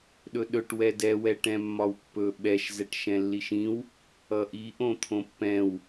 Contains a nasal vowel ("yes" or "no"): yes